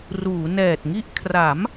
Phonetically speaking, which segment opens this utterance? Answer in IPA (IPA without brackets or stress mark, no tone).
r